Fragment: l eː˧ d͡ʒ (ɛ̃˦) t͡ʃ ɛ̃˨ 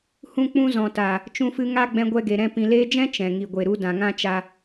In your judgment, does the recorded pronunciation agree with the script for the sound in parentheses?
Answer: yes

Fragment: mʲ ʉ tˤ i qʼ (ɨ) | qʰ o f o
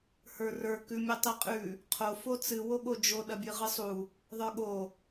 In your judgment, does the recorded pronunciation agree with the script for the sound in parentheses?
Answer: no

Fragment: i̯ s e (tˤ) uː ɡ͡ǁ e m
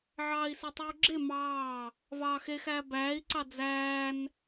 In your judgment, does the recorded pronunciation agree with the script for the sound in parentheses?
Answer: yes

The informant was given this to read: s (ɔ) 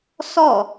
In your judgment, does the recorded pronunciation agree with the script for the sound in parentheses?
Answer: yes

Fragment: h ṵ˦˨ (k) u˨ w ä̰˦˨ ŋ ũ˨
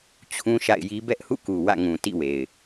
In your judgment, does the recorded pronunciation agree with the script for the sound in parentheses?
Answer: yes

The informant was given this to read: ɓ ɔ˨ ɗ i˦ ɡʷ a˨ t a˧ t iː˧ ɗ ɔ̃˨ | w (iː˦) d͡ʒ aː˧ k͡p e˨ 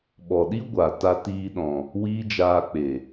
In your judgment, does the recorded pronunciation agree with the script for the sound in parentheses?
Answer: yes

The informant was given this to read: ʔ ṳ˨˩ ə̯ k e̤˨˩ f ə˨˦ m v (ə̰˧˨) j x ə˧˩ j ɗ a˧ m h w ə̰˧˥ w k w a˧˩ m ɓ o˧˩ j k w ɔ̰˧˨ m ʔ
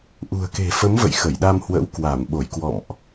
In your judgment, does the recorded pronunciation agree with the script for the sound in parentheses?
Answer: yes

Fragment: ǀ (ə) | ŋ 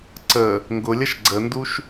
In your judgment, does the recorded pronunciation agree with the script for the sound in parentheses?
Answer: yes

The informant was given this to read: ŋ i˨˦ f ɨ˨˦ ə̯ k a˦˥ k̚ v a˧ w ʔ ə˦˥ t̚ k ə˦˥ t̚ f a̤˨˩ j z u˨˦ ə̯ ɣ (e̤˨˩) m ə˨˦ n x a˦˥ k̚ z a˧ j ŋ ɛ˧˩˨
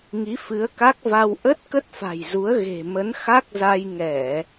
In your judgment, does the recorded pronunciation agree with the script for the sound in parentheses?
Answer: yes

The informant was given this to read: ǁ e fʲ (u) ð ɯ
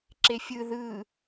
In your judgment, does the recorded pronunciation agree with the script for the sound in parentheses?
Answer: no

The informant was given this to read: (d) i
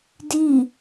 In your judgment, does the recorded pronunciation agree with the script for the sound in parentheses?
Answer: yes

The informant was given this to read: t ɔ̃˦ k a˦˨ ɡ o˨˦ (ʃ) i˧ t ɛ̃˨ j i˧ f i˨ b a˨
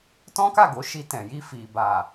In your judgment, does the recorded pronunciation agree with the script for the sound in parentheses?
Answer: yes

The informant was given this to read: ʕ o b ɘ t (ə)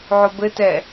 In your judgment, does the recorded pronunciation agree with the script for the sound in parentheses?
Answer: no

